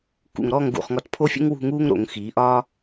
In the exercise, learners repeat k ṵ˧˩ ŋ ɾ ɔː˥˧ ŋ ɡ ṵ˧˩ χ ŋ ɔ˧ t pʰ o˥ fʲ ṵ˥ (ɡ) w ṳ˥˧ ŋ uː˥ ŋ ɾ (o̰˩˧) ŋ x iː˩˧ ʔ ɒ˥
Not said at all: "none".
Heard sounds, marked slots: ŋ, o̰˩˧

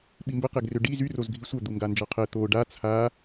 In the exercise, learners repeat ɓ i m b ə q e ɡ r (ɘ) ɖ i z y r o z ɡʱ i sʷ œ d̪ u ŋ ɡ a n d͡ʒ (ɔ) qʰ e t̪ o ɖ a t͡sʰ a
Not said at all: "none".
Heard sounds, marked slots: ø, ɔ

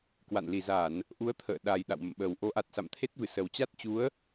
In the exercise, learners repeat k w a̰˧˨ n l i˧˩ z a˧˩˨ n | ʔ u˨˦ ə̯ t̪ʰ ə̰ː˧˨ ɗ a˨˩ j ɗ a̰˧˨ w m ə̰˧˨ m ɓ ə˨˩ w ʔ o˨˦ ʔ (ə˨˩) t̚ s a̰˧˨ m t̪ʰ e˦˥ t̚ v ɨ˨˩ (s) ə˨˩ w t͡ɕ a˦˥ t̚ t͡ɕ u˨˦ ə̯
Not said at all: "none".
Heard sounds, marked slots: a˨˩, s

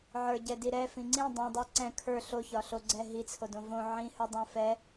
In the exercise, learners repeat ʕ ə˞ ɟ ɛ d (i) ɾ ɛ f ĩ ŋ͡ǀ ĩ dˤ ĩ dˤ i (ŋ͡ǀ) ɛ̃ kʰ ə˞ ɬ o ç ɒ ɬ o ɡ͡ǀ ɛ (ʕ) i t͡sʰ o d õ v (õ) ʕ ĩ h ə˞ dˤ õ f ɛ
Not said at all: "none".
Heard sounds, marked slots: i, ǀ, ɦ, õ

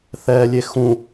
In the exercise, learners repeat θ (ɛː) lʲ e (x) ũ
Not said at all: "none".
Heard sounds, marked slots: ɛː, x

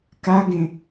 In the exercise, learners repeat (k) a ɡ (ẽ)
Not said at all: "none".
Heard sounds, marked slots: k, ẽ

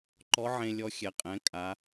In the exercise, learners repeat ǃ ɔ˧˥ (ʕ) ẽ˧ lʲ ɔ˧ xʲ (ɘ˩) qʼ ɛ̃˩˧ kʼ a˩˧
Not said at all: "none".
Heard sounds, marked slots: ʕ, ɛ˩

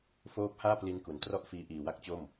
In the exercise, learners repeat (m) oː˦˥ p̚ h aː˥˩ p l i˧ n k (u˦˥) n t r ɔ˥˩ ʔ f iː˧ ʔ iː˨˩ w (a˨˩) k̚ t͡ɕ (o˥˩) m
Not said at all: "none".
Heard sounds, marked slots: f, u˩˦, a˥˩, o˥˩

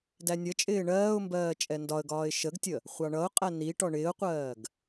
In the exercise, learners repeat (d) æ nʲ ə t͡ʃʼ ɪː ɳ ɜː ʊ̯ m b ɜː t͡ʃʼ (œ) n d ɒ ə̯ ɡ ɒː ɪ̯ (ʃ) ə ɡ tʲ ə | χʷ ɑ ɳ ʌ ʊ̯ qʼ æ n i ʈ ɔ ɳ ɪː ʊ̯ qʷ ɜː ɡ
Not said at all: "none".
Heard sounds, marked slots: d, ɛ, ʃ

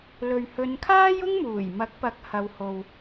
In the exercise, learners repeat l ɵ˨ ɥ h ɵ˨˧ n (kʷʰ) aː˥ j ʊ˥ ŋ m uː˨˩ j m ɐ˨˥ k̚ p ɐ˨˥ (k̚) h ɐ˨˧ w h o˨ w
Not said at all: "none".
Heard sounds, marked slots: kʰ, k̚

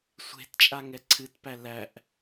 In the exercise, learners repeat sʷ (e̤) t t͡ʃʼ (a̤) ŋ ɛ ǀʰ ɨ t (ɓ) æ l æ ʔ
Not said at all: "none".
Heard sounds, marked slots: e̤, a, p

